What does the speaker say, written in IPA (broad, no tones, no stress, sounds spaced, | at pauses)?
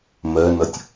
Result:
m ɜ n ʌ tʲ